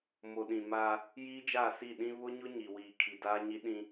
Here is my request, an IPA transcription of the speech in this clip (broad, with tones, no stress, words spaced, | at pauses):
mo˨ɗĩ˨maː˦ | jiː˦d͡ʒaː˦˨si˦˨ ɗĩ˦ βʊ˦ɲʊ˦ ɲi˨wiː˨kʰi˨ daː˦ɲi˦ ɗĩ˦